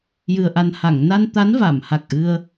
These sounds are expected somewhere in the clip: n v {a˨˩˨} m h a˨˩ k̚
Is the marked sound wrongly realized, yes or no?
no